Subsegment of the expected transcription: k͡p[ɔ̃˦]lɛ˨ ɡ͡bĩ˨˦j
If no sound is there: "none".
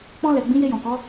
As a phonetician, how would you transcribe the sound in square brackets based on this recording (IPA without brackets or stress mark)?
ɔ̃˧